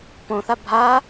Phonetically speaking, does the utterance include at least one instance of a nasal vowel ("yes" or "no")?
yes